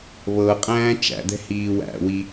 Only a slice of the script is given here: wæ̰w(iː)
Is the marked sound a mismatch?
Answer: yes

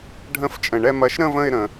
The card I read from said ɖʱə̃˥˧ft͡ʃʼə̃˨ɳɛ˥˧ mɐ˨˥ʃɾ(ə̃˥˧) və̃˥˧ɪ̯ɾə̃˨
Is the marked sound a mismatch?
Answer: no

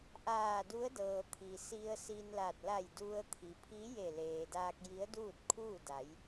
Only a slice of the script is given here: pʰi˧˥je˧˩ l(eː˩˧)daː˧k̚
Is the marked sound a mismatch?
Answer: yes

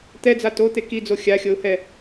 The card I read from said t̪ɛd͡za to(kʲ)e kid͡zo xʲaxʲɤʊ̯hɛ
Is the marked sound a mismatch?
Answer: yes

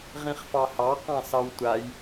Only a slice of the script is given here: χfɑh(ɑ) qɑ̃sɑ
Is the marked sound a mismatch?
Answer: no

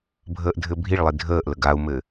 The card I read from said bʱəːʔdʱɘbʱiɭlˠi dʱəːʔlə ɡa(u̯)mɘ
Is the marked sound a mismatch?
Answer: no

